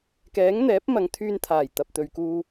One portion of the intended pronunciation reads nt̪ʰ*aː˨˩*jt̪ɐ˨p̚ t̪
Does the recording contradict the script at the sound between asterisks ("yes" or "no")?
no